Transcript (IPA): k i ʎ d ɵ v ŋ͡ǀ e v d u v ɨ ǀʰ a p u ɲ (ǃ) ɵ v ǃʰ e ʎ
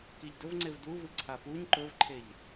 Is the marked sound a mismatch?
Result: no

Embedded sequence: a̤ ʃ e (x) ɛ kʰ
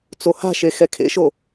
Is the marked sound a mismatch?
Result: no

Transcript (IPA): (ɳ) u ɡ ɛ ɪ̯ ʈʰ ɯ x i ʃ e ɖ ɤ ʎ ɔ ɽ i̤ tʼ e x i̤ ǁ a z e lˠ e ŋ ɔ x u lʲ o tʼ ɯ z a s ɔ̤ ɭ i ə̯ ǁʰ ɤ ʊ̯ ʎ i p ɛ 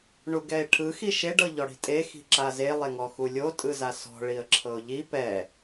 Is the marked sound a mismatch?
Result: no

